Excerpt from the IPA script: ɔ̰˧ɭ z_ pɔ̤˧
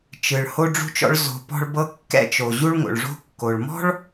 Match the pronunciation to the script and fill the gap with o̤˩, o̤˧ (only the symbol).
o̤˩